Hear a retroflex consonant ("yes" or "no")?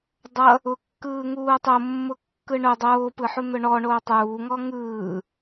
yes